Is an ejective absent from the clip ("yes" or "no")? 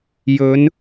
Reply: yes